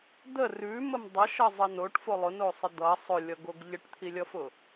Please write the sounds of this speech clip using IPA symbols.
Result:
d̪ ə r ʉ m ə m dˤ ʌ ʃ ʌ zˤ ə n o ʈ f o lˠ ʊ n o sˤ ə d̪ ʌ sˤ ʊ lʲ ʌ ɡ o ɡ ʎ ə ʈ t̪ʰ i lʲ ʌ f ʊ

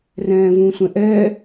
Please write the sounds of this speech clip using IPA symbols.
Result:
r ɛ̃ː v ũ sʷ ɛ̃ ʔ ɛ

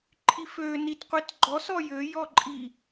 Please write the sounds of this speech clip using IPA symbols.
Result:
ǃʰ i f ø n i t qʷ i t ɡ͡ǃ ɔ s ɔ j ø j ɔ ǃʼ i

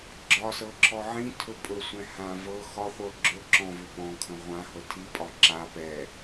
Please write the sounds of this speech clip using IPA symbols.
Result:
ɡ͡ǁ ɒ s ɤ ǁʰ ɔ ʕ ĩ tʰ ɵ pʼ ɵ sʷ ɛ̃ h ã v ɤ x ɒ χʷ ɤ ɡ͡ǁ ɵ ǁ ɔ̃ v ʏ p ɔ̃ kʰ ə̃ ʁʷ ã h ɤ tʰ i pʼ ɒ ǁ a p ɛ

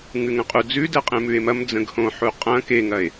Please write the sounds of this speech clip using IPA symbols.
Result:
ŋ ʉ ŋ ə̃ qʼ u d͡z ʉ d ɛ qʼ ẽ m ʉ e̯ m ɐ m d͡z ə̃ ɡ h õ ħ u qʼ ɐ̃ k e ŋ ɐ e̯

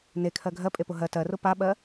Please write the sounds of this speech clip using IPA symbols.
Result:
n e kʰ ɜ ɡʱ ɜ pʼ e p ʊ ɦ ɜ t ɜ r ʊ p a ɓ ɜ

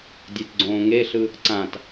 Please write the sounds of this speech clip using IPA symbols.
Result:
dʲ e t ɡ͡ǀ õː ŋ e ɬ ɯ | ǀ ã t

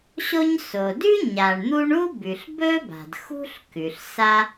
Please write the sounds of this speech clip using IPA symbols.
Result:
ɕ o˥ ɲ s o˩ d ʉ˥ ɲ a˩ ɳ n̪ u˥ ɳ u˥ b ʉ˩ ɬ b ɵ˥ b a̤˩ d x ṳ˥ ɬ k ʉ˩ ɬ s a˥

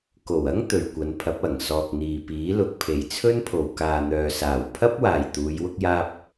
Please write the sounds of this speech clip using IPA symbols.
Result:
k o˨˩ w ɐ˥ ŋ t̪ ɵ˨ ɥ kʷ ɐ˨˧ n pʰ ɐ˨˥ p̚ ɐ˨˩ ŋ s ɔː˨ k̚ n̪ iː˨ p iː˨˥ l ʊ˨ k̚ pʰ e˨ j t͡sʰ ɵ˥ n pʰ o˨ w k aː˨ n̪ œː˨ s aː˨˩ w pʰ ɐ˥ p̚ w aː˨ j t̪ uː˨˧ j w ʊ˥ k̚ j aː˥ p̚

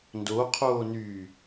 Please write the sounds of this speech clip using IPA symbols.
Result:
n d o qʰ oː n yː

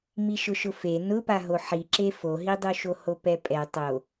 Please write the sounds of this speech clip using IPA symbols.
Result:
m i ʃ ʊ ʃ ʊ f e n ʊ p a ɦ o ħ i ǁ e f o ɦ i dˤ u ʃ o h o p ɛ pʼ ɛ tˤ o

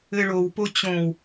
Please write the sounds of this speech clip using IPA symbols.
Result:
ɘ ɭ o w p o t͡ɕ õ w

